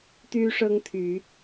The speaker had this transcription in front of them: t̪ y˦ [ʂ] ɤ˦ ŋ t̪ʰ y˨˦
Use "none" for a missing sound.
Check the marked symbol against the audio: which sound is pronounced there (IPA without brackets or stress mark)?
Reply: ʂ